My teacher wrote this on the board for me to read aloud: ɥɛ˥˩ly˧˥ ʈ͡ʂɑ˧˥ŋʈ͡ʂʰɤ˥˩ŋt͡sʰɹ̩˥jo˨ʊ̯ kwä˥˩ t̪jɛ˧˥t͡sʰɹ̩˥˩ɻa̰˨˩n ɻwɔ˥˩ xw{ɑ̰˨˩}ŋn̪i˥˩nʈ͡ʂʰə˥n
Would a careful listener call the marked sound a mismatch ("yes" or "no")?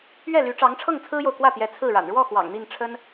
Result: no